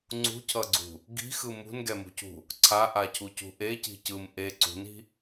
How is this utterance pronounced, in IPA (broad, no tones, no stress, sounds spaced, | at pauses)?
ŋ͡ǀ ṳ cʰ ʌ ɡ͡ǀ ṳ | ɡ i̤ x ɯ m ṳ n ɡ ɛ m ṳ c ṳ | ǀʰ a ʔ a cʰ u c ṳ ʔ e c i̤ c ɯ m ʔ e ǀ ṳ n i̤